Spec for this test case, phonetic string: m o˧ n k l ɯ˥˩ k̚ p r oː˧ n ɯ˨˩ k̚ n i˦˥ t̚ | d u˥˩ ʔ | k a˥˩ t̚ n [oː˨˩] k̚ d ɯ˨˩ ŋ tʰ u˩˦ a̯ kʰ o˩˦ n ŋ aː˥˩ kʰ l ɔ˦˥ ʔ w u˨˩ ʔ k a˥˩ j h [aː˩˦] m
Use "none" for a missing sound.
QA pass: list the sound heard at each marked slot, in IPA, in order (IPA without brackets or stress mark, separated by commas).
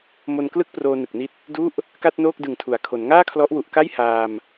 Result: oː˥˩, aː˧